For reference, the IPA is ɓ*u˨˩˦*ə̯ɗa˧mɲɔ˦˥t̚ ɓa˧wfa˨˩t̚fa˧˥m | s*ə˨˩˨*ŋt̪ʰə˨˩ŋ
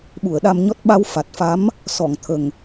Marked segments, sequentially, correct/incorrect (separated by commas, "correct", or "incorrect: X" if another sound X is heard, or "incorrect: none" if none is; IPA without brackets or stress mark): incorrect: u˨˩˨, incorrect: ɔ˨˩˨